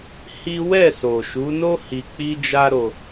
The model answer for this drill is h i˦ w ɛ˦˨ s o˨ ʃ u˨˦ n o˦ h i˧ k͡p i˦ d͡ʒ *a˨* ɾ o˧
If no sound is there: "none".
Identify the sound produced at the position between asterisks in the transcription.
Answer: a˦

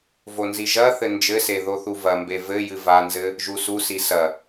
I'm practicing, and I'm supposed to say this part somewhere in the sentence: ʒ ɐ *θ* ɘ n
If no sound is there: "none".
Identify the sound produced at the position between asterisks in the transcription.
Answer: θ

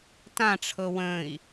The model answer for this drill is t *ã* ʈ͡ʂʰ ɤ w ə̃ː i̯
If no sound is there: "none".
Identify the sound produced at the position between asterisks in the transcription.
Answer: ã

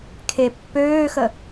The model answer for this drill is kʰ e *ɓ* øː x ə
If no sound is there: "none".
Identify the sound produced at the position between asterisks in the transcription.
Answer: pː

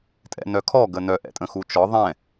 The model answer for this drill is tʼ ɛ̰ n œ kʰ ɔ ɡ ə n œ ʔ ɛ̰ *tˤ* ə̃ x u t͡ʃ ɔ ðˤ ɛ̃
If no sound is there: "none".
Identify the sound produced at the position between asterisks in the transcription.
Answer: tʼ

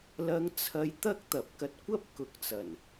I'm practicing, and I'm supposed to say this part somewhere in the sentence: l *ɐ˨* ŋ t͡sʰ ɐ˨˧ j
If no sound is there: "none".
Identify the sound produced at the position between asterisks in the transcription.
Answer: ɐ˨˧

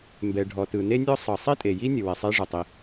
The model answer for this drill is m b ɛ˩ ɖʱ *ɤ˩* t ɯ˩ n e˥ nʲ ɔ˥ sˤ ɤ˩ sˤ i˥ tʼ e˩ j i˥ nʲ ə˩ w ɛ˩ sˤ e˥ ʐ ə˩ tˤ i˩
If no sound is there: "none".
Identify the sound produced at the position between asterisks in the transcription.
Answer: ɔ˩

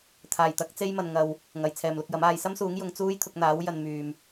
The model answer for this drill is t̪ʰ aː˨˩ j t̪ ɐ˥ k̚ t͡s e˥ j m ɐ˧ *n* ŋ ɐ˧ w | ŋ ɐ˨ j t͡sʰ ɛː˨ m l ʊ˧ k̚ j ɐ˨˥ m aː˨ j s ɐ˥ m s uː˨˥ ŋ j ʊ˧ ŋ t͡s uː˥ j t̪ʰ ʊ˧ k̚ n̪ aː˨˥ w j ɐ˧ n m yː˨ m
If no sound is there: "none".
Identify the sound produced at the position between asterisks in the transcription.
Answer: n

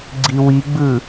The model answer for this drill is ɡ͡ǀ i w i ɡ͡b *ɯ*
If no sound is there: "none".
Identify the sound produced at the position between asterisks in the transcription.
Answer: ɯ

